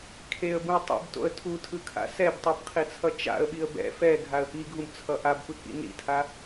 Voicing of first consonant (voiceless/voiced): voiceless